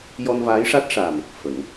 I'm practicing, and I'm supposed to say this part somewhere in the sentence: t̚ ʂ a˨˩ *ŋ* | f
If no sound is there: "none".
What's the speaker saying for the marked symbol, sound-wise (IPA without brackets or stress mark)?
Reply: m